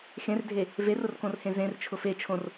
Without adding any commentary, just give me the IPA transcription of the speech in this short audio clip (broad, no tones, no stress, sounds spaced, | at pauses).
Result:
x ẽ r dʱ e | v e r ʊ r k õ r h ẽ z ẽ r t͡ʃʰ ʊ f e t͡ʃʰ õ r